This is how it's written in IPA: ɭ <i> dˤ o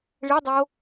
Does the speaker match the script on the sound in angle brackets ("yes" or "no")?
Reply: yes